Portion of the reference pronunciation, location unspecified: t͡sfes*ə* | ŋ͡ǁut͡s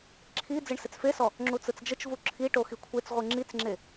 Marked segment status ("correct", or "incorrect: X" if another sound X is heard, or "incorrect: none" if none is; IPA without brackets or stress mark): incorrect: ɔ